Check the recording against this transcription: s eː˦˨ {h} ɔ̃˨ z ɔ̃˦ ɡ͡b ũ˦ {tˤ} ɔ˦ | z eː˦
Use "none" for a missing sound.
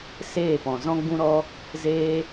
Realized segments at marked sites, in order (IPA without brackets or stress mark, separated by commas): p, ɾ